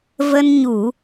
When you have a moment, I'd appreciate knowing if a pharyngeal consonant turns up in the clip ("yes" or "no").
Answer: no